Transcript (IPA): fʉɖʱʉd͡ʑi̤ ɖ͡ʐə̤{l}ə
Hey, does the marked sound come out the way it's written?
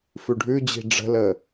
yes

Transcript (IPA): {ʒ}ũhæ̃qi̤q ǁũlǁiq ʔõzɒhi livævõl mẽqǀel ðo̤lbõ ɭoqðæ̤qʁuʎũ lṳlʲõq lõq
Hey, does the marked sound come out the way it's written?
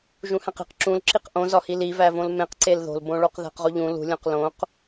yes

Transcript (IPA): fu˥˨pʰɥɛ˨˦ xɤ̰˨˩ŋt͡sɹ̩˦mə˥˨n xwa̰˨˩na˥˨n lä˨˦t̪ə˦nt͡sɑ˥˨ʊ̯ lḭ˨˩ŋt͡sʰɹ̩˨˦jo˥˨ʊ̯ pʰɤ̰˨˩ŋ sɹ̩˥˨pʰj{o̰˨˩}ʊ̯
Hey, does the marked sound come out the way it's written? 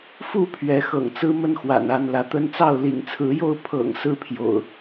yes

